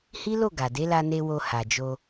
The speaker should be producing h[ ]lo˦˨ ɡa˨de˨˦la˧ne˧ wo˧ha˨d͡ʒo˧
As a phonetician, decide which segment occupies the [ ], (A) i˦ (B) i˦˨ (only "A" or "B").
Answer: A